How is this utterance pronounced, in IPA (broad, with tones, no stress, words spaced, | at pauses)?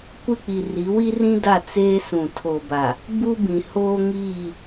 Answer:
kʷɪ˦˨k͡pi˨ ri˨˦wi˦rĩ˦da˦˨ t͡seː˦sũ˨tʰo˨ba˨ | bu˦bĩ˨ hoː˦ŋiː˦˨